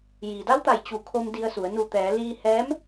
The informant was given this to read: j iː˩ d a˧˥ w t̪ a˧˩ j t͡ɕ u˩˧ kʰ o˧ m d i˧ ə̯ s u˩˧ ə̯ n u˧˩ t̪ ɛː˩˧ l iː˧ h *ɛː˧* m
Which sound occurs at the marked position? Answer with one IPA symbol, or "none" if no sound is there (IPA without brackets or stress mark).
ɛː˧˥